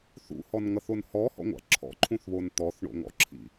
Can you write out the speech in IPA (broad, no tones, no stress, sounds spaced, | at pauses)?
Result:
θ ṵ h ɔ n ŋ ʌ θ o n h ɔ h ɔ̰ ŋʷ a̰ ǁʰ ɔ̰ ǃʰ ũ θ β o n t̪ ɔ θ ɳ o̰ ŋ ɔ̰ ǁʰ ḭ